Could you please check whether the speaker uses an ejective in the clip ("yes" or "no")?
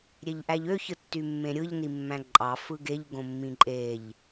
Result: yes